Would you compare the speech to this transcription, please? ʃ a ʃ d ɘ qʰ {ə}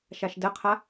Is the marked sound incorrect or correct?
incorrect